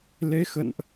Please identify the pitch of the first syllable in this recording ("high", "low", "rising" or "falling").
rising